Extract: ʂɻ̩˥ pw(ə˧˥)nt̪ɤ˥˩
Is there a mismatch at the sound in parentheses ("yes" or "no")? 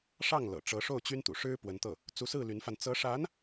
no